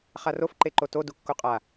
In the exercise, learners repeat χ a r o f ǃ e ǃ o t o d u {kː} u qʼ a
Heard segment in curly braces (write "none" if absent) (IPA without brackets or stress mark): kː